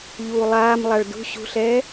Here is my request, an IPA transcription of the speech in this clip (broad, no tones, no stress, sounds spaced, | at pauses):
ʎ uː lˠ aː m lˠ a ɭ d ṳ ɕ ṳ ɬ ɛː